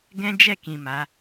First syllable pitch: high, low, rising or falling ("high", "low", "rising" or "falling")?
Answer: high